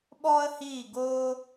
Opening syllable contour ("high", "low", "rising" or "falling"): high